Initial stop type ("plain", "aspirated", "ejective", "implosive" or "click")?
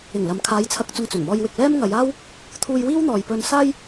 aspirated